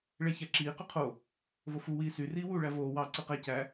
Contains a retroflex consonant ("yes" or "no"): yes